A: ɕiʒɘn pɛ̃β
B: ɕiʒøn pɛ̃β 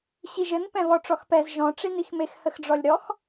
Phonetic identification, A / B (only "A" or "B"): A